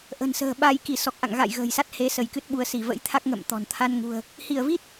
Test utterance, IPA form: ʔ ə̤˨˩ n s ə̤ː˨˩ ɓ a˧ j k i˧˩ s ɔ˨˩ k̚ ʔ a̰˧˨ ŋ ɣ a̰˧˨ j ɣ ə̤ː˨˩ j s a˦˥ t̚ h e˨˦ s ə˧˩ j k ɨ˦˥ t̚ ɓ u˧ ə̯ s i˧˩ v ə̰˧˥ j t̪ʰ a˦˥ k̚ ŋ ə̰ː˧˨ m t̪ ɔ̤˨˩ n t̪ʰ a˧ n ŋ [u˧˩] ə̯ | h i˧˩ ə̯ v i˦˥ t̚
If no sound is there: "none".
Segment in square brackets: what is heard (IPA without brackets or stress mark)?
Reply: ṳ˨˩